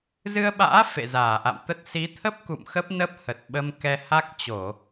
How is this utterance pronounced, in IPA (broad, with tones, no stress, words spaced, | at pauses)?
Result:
zɨ˧ə̯ɓa̰ː˧˥ fḛ˧˨zaː˧˩ʔa̰˧˨m t̪ə˦˥t̚ si˨˦t̪ʰə˦˥p̚kṵ˧˨m xə˦˥p̚nə˦˥p̚ hə˨˩t̚ɓə˧m kɛ˧ha˦˥k̚t͡ɕo˧˩˨